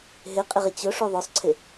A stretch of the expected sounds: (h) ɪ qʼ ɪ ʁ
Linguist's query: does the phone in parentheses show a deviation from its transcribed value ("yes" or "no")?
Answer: yes